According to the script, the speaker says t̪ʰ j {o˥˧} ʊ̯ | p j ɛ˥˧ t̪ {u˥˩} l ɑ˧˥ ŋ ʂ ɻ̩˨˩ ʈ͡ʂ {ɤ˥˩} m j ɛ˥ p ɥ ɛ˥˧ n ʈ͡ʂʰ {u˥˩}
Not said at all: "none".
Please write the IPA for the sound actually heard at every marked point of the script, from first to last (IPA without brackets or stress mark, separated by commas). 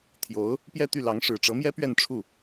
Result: o˧˥, y˥˩, ɤ˧˥, u˥˩